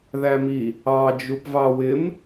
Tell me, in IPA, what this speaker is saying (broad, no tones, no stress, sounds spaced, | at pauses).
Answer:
ð æ m i | ɑ d͡ʒ u p v ɑ w ɪ m